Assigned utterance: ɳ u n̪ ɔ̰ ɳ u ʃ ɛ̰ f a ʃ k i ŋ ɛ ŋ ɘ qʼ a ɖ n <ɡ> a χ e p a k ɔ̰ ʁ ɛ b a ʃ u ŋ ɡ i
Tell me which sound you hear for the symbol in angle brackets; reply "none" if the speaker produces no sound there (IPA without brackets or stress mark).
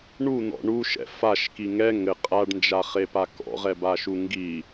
d͡ʒ